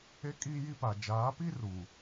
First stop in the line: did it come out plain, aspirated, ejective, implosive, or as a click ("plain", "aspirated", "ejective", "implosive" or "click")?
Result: ejective